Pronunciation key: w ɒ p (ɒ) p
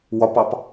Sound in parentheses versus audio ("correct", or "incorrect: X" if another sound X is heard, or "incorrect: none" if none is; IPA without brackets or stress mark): incorrect: ɑ